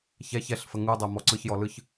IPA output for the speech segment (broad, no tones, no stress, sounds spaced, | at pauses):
ç ɛ ç ɛ ɬ f ə ŋ u dˤ ɛ m ɔ ǀ ɯ ç j ɔ l ɯ ç